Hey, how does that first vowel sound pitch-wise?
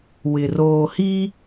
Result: low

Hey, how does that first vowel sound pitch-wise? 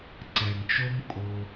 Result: low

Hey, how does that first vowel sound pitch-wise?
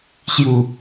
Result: falling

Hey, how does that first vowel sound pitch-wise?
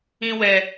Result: high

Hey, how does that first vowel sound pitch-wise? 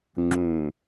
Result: low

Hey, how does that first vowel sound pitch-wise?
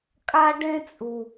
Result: high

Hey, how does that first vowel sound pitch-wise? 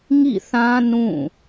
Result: falling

